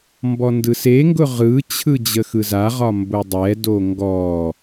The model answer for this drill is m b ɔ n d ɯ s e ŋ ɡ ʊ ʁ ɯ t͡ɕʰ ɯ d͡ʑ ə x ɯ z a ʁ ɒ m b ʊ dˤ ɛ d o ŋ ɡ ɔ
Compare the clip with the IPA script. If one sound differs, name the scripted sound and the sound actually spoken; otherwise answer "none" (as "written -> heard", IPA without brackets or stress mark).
none